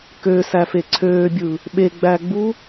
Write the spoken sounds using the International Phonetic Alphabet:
køsæfe ǀʰøːbʲɯ | ɓeɡ͡bæɡ͡bu

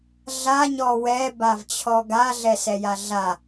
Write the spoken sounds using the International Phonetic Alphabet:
ɮaɲɔ wɛbavt͡ɕʰɔ ɡaɮɛsɛja ɮa

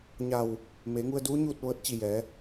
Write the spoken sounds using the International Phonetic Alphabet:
ɲa˧˩w | meː˩˧ŋu˧ə̯duː˧˥ ɲuː˥˨t̚ ʋɤː˧˥t̚t͡ɕi˧˩jɛː˩˧

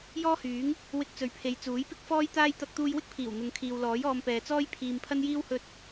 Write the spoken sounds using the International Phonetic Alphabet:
jɔː˥hyː˨˥ŋ | wɪ˧k̚t͡sɵ˨ɥpʰe˨j t͡suː˨˥jpɪ˥k̚fɔː˥jt̪aː˥j t̪ɐ˧k̚t̪uː˧jwɪ˥k̚pʰiː˨˩w n̪ʊ˨ŋkʰiː˨wlɔː˨˥jɔː˧m pɛː˨t͡sɔː˥j pʰiː˧mpʰɐ˥njiː˥w hɵ˧t̚

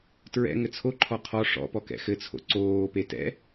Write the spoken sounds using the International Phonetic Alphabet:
tɹɛ̰ ŋɘt͡sʰoǃʰɔ qʰɔ ʂɔ̰pɔ kɛ̰xɘt͡sʰo̰ ǀoːpe tɛ̰

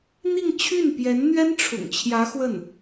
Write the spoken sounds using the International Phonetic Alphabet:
n̪i˥˧ŋt͡ɕʰy˥˩npjɛ˧˥n n̪ɥɛ˥nʈ͡ʂʰʊ̰˨˩ŋt͡ɕʰjä˧˥ xwə˥˩n

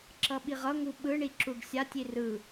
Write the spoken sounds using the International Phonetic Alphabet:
ǁʌɓiʁʌŋu ɓɯɳi ǁuɖsʲatʲi rɯ

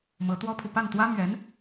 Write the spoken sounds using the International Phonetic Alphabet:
mɤ˧˥t̪wɔ˥pʰu˨ pa˥˩nt̪wä˥ mɥɛ˧˥n

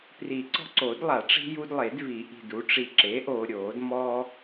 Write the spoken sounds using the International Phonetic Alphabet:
pri˨˩˦ ǀɔ̤˦ǀo˨˩˦dlˠa˨˩˦ʈ͡ʂi̤˦ ju˦dlˠe˨˩˦dvi˨˩˦ ʔi̤˨du˩˥ ʈ͡ʂi˨ǁe˩˥ʔoː˨ ɾʲoː˨˩˦dmɔ˦

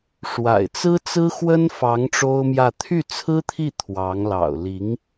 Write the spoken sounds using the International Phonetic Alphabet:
ʂwa̰˨˩ɪ̯t͡sɹ̩˥t͡sɹ̩˥ xwə˥nfɑ˧˥ŋ ʈ͡ʂo˥ʊ̯mjä˥˧ t̪ʰy˥˩t͡sʰɹ̩˥t̪ʰi˥˩ t̪ʰwɑ˧˥ŋ lɑ̰˨˩ʊ̯li˧˥ŋ

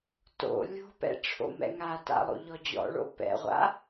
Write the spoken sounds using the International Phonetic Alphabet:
to̰ lʲo̤pɛ̰ ʈ͡ʂʰo̰mɛ̰ŋata̰ lˠo̰ʎɔd͡ʑɔ̰ɭo̰ pɛ̰ʁʷa̰

